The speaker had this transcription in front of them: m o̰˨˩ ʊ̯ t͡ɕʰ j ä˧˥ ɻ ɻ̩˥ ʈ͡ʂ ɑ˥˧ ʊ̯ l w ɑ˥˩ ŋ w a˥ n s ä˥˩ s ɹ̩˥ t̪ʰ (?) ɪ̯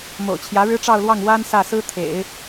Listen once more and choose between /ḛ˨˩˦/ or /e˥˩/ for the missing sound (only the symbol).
ḛ˨˩˦